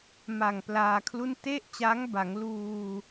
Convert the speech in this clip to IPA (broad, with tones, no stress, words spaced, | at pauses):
ma˨˩ŋ plaː˧kʰlu˥˩n te˥˩ʔt͡ɕa˦˥ŋba˩˦ŋluː˧